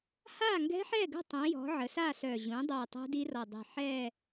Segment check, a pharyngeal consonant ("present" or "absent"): present